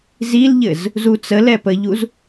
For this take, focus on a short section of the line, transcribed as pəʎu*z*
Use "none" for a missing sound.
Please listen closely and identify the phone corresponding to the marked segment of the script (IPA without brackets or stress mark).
z